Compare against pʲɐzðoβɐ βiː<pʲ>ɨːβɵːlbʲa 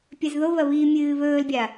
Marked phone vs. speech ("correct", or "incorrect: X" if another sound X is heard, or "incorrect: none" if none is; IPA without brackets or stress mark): incorrect: mʲ